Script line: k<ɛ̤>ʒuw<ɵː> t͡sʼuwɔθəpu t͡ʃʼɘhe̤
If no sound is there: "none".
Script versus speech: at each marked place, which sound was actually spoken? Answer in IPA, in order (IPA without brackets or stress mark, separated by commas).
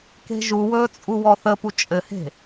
e̤, ɵː